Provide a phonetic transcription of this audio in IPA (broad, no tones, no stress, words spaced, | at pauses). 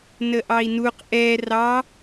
nəʔɑi̯nuq ʔɛ rɑ